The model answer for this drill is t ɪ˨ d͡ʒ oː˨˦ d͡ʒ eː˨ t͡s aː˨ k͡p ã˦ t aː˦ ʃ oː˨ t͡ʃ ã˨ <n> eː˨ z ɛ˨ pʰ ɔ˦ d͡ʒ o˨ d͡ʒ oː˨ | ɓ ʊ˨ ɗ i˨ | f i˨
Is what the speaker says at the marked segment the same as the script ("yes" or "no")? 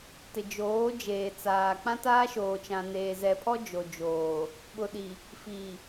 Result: yes